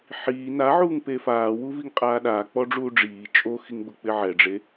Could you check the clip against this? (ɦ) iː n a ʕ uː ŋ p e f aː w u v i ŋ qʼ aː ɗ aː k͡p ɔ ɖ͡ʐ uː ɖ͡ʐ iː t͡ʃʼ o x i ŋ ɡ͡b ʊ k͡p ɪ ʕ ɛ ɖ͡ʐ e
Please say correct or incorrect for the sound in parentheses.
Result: incorrect